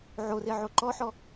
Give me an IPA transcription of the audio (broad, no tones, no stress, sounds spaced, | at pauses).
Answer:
ʕ o r e ʕ o ǃ ɔ ħ ɔ